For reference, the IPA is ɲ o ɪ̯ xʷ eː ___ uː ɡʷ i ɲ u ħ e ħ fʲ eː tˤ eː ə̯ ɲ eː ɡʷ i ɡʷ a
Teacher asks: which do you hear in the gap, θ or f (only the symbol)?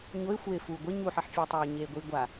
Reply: f